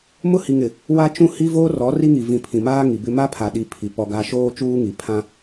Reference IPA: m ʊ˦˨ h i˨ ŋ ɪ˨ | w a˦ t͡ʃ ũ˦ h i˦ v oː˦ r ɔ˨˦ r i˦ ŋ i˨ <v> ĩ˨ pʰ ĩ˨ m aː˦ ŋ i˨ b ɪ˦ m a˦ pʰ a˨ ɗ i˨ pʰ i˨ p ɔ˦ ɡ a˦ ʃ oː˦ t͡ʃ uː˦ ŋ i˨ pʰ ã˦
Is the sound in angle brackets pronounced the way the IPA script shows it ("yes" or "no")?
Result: yes